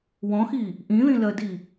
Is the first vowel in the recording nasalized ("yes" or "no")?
yes